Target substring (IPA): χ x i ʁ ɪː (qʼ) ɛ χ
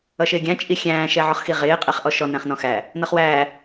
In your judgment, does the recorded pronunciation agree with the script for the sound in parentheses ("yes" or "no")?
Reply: yes